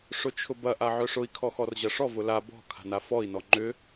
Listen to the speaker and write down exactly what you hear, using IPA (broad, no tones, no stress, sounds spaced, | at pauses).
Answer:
ʂ ʊ t͡ʃʰ ʊ b ɐ ʔ a ʕ œ ʂ ʊ i̯ kʰ ɔ x ɔ r ʑ ɐ ʂ ɔ v ʊ l a b ɔ̤ kʰ a̤ n a f ɔ i̯ n ɔ ŋ͡ǃ ʏ